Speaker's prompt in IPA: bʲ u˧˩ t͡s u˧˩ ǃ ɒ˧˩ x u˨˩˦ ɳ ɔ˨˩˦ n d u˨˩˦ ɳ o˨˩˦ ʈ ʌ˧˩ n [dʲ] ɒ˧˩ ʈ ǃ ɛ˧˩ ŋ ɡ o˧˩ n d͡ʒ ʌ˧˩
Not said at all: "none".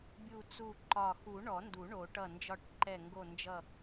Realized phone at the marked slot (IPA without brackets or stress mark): d͡ʒ